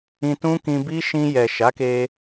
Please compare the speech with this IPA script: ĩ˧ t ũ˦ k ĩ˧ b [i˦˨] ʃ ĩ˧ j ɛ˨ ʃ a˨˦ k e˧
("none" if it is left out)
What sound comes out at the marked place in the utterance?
i˦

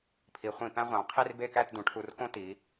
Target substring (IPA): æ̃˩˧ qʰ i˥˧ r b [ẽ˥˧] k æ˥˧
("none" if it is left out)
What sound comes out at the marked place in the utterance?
e˥˧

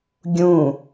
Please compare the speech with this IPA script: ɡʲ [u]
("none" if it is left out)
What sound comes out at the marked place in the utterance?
ũ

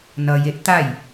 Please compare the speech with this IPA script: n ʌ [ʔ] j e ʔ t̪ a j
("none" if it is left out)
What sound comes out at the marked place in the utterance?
none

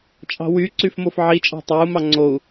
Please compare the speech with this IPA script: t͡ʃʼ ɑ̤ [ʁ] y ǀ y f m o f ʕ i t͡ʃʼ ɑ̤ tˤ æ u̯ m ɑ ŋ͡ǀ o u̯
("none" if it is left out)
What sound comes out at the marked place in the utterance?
w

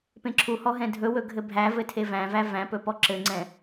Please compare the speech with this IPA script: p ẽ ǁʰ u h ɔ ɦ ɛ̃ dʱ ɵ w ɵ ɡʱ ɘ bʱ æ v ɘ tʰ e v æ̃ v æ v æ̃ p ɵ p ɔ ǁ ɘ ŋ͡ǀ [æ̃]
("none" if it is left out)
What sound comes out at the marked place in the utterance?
ɛ̃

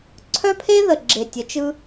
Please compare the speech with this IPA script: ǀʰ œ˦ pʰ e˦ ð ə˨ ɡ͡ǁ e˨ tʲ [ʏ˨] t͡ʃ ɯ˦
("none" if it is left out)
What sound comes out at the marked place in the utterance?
ə˨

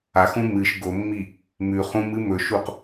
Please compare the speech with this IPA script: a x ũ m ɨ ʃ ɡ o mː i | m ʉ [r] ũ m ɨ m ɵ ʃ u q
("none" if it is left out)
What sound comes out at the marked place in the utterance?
χ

